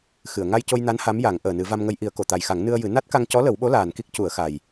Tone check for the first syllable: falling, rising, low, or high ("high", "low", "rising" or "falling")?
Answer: low